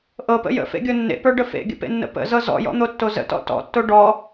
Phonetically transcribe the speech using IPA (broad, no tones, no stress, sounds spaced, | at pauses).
ʔ ɤ p ə̰ j ə̰ f ḛ ɡʲ o nː ḛ p ə˞ ɖ ə f ḛ ɡʲ ə̰ p ḛ nː ə̰ p ə̰ z ɤ z ɔ̰ j ɔ̰ n̪ o tː o z ə̰ t ɔ̰ t ɔ̰ tː o ɖ ɔ